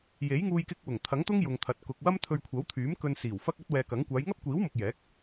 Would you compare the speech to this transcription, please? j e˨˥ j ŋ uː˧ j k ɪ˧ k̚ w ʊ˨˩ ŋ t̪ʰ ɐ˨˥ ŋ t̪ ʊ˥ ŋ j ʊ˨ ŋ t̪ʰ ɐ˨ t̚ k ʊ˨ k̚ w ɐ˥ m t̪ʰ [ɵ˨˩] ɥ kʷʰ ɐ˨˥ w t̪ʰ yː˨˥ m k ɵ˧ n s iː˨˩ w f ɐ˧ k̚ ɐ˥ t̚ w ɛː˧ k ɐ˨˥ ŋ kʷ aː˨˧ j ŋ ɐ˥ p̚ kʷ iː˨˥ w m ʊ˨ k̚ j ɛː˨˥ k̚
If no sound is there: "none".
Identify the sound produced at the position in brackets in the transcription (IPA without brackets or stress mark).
ɵ˧